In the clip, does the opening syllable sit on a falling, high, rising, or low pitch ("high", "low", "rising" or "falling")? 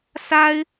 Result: high